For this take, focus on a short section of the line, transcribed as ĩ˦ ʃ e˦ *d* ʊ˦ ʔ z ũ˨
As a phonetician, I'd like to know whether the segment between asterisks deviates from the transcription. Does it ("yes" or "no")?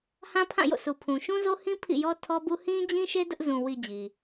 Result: no